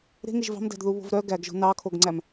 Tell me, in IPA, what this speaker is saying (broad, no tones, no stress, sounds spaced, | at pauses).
ɾ e̤ ŋ e ʒ v ɑ̤ m d æ̤ d ð u β o̤ v ɾ œ ɡ æ ɡ ʒ o̤ n ɑ kʰ o ɡ ŋ͡ǀ æ m